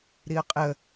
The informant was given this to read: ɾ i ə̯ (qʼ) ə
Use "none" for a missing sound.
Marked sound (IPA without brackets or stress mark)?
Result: qʼ